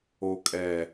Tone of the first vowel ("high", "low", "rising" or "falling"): low